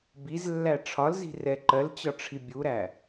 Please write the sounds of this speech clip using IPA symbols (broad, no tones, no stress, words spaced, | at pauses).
bizlːæ ʈ͡ʂʰɒlzi̤rɛ ǃɜlt͡ɕɒʈ͡ʂʰi bʲuɾæ